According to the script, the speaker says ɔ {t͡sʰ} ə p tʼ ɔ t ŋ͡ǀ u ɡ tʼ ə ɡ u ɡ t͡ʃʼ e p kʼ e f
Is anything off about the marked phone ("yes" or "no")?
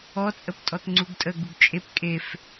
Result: yes